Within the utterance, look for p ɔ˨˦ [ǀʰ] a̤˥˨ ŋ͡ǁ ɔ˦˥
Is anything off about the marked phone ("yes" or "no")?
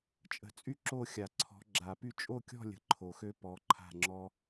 yes